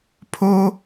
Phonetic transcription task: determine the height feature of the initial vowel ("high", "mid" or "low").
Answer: mid